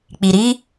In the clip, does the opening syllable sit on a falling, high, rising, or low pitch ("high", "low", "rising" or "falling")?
low